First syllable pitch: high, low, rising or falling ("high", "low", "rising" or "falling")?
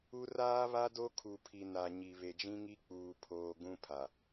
high